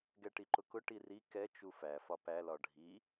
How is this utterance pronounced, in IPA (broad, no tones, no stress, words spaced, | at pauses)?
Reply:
ɡɛʈiǃʊkʊ ʈiri kɛ t͡ʃufæ fɒpæ lɒɖʱi